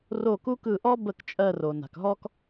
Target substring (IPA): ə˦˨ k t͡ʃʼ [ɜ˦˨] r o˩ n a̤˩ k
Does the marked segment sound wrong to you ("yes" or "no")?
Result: no